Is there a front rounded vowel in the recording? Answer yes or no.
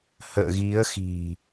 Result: no